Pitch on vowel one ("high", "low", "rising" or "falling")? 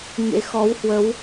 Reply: rising